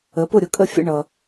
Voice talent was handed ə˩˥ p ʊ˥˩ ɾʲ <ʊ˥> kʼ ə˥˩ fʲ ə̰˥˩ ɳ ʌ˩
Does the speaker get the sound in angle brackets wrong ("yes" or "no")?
yes